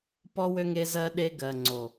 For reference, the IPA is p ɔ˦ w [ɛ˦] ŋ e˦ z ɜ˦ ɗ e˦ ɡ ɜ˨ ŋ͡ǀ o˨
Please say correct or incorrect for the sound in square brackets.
incorrect